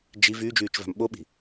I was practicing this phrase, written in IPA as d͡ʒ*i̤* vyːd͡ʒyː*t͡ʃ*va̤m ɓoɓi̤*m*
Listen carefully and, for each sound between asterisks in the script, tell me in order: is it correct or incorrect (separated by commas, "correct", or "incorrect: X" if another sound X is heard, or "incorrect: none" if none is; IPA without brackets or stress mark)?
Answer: incorrect: i, correct, incorrect: none